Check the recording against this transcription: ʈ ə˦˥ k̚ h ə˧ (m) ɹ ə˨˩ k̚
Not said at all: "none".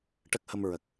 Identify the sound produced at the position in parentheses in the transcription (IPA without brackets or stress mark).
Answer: m